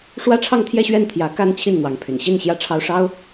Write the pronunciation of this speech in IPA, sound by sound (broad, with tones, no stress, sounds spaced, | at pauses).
ʂ w ä˥ ʈ͡ʂʰ ɑ˥˧ ŋ t̪ʰ j ɛ˥˧ ɕ ɥ ɛ˥˩ n t̪ʰ j ä˧˥ k a˥˧ n t͡ɕʰ i˥˩ n n̪ w ɑ˧˥ ŋ pʰ y̰˨˩ n ɕ i˥˧ n ɕ j ä˥˩ ʈ͡ʂʰ ɑ˥ ʊ̯ ʂ ɑ˥ ʊ̯